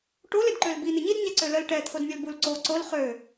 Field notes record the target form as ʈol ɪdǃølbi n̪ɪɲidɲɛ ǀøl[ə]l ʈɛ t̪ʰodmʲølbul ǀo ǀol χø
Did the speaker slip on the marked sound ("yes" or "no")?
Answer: no